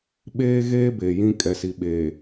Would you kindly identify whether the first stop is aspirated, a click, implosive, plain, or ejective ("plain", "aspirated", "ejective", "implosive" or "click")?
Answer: implosive